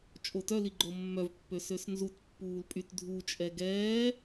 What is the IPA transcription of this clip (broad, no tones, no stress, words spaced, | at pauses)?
t͡ʃʼotœliɡ͡ǃo mːœvpːø søsnzut pːuːlpʼyt dʱut͡ʃʼɛ ɡɛː